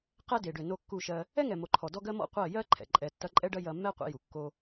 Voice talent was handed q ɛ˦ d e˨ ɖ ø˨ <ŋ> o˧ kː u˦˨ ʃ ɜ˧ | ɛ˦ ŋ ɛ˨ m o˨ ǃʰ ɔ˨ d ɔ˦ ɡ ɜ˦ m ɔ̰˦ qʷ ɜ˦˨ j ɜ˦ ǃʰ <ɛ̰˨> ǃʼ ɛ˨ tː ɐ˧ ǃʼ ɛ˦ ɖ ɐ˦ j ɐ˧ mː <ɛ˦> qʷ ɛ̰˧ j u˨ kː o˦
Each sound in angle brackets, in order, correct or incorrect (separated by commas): incorrect, correct, correct